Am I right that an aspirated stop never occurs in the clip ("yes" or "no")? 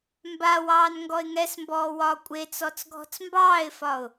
yes